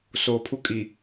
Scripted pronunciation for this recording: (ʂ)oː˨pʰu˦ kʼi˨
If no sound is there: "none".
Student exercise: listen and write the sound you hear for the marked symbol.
s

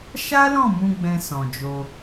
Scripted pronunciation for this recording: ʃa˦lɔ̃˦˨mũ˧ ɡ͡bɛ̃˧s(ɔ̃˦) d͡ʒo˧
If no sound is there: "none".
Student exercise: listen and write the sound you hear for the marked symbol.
ɔ̃˨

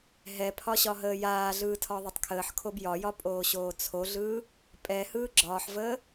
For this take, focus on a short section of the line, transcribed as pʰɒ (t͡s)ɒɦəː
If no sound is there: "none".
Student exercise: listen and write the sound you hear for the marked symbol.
ɕ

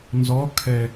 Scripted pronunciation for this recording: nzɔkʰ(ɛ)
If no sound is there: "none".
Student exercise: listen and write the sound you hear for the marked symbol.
ɛ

